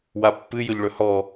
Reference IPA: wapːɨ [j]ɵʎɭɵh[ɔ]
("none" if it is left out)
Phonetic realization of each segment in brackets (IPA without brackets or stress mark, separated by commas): j, ɔ